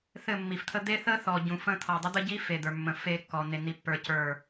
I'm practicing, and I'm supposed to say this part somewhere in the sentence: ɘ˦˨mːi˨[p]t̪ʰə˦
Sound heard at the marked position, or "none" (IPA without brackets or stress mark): f